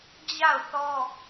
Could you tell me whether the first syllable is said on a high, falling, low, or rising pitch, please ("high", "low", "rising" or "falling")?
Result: falling